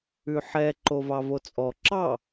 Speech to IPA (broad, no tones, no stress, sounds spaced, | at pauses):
ʉ ħ ɛ ǃ o v ɑ v o t͡sʼ ɔ ǁ ɑ